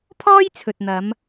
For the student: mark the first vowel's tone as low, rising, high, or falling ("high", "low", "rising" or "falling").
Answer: high